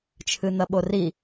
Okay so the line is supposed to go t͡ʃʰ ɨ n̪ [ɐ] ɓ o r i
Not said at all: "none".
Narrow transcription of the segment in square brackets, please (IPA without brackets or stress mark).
ɐ